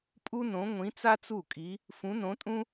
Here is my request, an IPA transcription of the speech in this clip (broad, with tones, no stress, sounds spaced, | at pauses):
pʼ u˥ n õ˧˥ ŋʷ ĩ˧˥ t͡s a˥ t͡s u˥˩ kʼ i˧˥ | f ũ˧˥ n õ˧˥ tʼ ũ˥